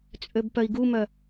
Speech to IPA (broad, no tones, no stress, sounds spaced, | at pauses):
t͡sʼ ø b p œ i̯ ɡ u m œ